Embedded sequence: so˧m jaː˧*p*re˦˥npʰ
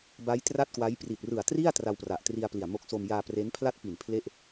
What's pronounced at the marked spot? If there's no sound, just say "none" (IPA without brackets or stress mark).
p